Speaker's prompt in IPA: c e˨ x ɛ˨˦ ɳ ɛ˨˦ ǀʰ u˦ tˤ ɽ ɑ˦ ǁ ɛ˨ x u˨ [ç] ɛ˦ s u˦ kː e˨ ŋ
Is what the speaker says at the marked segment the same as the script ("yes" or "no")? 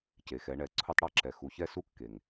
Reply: yes